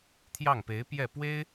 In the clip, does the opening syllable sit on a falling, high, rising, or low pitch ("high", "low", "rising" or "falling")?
falling